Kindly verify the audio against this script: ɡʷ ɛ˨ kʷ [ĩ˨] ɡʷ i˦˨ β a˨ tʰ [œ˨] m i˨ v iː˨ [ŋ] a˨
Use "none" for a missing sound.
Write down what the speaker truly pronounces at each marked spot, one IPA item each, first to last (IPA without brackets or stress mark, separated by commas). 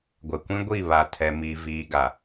ĩ˦, ɛ˨, ɡ